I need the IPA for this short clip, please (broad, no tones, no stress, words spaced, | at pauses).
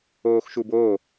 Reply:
oːxʃuboː